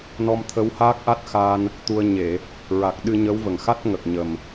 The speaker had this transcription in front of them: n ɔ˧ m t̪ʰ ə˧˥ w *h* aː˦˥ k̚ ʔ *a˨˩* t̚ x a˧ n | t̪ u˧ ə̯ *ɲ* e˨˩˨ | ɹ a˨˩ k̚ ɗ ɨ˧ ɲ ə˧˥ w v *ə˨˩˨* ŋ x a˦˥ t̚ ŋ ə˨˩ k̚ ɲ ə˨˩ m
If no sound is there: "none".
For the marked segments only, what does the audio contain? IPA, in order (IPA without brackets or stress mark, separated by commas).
h, a˦˥, ɲ, ə˨˩